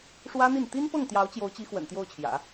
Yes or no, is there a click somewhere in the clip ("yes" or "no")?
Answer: no